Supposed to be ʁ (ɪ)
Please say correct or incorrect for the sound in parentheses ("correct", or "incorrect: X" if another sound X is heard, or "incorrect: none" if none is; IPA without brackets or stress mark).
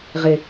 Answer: correct